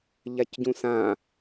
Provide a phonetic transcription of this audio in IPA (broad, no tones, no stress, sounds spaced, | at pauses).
ʎ a c ɟ ũ s ã